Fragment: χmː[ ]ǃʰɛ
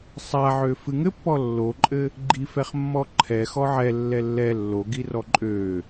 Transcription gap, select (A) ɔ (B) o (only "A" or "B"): A